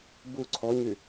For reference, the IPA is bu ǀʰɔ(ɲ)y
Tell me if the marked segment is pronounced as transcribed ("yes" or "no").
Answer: yes